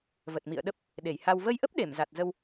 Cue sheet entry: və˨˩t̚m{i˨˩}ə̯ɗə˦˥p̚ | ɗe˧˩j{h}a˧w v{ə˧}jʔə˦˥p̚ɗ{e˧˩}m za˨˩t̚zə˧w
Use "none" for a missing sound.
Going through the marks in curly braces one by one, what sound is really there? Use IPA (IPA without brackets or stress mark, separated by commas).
ḭ˧˨, h, ə˧, e˧˩